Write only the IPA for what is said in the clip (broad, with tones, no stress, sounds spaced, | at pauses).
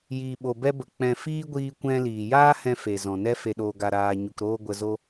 j iː˨ ɓ o˨ b ɛ˧ b ə˨ k͡p ɛ̃˧ f iː˦ ɡʷ iː˧ kʷ ɛ̃˧ l iː˨ j aː˦ h ɛ̃˧ f e˨ z ɔ̃˨ n ɛ˦ f e˧ ɗ oː˧ ɡ a˧ ɾ aː˧ ɲ u˧ k ɾ oː˦ ɡʷ ə˧ z o˦